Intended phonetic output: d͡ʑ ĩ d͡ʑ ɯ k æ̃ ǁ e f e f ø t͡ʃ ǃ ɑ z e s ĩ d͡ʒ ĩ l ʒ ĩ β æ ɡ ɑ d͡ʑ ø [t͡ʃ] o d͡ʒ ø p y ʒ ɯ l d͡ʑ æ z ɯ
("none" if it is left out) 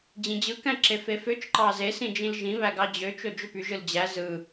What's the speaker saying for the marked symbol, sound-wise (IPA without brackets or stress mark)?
t͡ʃ